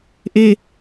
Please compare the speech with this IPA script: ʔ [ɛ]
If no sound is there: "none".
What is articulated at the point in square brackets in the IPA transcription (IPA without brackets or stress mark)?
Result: e